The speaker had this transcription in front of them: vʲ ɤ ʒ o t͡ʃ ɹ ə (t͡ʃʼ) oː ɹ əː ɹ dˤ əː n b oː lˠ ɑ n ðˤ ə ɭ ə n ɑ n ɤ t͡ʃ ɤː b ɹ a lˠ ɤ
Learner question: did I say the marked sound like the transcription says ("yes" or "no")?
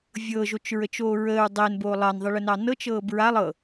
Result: no